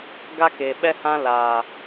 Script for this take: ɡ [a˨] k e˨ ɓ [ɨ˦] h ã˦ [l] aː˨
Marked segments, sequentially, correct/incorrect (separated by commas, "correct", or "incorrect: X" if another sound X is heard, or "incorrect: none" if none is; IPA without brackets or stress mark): incorrect: a˦, incorrect: ɛ˦, correct